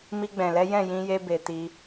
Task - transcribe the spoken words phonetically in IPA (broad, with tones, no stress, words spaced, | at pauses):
mi˧ɡ͡bɛ̃˨lɛ˨˦ jɛ̃˦˨ jĩ˧je˧be˨ ti˧